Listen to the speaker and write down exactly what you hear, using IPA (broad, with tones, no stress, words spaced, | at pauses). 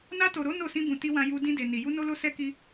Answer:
na˧to˨ɾo˨˦ no˦˨sĩ˧bũ˨ti˧ wã˧ ju˧ dĩ˧de˨ ni˨ ju˧no˧lo˧ sɛ˦ki˦